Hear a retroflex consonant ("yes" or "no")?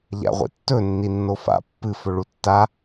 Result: yes